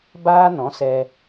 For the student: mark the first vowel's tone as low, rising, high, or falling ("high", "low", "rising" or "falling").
high